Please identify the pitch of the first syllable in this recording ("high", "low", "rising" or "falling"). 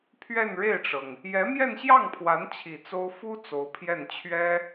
falling